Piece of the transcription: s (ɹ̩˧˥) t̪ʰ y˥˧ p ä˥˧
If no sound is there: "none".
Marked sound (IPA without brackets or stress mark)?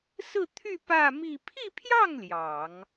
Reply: ɹ̩˥˧